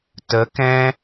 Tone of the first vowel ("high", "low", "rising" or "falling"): rising